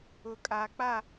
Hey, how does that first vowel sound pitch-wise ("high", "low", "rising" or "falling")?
low